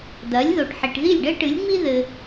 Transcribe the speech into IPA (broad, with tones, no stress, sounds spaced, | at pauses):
d̪ ɐ˩˥ lʲ ð o˩ ʈ ħ i˩ ʈ ð i˥˩ lʲ ɖ ɘ˥ ʈ ɨ˩˥ lʲ ŋ͡m i˥ ð ɘ˩